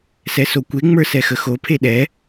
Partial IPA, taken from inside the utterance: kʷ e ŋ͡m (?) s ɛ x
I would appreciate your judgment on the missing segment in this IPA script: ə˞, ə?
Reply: ə˞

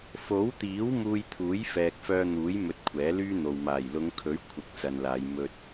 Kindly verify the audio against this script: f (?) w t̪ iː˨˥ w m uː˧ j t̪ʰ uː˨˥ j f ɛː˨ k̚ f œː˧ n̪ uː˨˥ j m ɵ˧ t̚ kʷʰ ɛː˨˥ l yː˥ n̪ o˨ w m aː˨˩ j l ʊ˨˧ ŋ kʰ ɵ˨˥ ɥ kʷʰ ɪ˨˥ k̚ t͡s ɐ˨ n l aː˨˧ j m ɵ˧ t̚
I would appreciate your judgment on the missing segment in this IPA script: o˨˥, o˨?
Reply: o˨˥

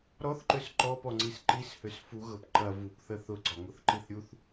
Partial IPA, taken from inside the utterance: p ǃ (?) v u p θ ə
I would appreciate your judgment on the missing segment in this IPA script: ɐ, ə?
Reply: ɐ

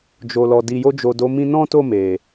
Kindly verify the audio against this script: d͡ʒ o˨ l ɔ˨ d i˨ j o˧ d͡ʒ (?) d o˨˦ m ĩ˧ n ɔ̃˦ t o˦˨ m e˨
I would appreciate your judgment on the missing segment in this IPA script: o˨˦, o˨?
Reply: o˨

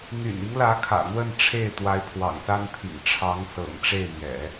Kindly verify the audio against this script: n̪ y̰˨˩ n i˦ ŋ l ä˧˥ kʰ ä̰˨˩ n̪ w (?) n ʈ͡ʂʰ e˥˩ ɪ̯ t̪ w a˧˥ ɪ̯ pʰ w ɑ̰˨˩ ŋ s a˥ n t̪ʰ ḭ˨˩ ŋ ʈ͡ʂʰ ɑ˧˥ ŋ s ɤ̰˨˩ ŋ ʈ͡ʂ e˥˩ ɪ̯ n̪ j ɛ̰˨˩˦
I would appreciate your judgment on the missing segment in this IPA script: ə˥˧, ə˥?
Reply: ə˥˧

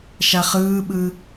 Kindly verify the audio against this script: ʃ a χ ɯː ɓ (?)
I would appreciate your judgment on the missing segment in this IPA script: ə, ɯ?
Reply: ɯ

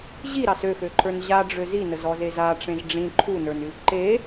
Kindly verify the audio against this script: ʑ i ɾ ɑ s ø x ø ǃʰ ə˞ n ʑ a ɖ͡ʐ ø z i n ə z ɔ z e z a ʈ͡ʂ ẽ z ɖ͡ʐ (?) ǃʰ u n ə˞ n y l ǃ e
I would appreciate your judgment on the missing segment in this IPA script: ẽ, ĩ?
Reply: ĩ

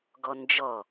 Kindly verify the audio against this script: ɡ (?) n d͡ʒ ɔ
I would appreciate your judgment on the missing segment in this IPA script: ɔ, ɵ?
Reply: ɔ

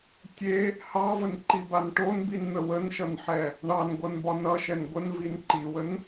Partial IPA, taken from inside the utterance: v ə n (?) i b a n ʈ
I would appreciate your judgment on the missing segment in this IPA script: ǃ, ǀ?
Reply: ǃ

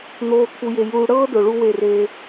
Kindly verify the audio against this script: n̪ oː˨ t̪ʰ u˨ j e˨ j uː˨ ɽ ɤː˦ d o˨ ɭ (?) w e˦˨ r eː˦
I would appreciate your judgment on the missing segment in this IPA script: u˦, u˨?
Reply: u˦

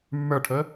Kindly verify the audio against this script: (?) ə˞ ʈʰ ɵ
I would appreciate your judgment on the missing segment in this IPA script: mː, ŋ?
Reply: mː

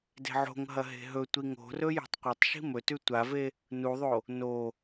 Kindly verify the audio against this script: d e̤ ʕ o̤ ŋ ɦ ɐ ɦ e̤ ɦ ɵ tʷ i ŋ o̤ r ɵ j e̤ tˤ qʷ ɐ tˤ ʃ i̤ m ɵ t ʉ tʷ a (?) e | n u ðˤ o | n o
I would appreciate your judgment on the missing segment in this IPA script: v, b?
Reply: v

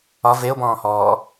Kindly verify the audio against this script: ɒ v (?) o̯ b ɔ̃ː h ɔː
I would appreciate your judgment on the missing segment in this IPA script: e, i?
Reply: e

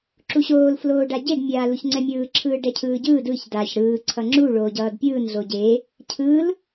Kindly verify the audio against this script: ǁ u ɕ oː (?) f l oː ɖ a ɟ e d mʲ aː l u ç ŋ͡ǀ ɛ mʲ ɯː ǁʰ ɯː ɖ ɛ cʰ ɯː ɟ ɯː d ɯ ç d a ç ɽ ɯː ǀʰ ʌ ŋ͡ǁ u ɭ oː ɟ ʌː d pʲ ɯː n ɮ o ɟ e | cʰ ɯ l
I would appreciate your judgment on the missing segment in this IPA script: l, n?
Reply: l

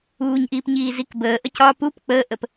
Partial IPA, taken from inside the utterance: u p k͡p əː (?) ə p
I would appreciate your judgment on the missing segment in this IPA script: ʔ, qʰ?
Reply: ʔ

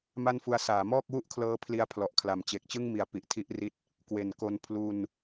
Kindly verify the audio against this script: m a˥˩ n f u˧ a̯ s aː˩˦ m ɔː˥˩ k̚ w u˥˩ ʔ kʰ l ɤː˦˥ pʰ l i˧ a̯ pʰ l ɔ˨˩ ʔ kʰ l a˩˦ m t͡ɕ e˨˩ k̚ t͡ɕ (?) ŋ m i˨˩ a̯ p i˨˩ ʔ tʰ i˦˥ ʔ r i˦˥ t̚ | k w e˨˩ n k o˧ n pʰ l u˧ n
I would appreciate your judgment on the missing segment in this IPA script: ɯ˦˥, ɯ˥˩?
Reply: ɯ˥˩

